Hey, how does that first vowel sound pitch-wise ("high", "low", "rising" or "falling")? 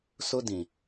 high